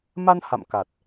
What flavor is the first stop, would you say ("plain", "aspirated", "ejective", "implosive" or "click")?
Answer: plain